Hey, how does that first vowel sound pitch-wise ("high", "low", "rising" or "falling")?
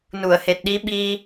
low